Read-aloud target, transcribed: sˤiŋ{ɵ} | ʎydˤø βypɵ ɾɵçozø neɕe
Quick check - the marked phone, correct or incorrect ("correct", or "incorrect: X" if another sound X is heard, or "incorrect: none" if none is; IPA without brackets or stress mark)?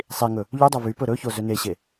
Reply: correct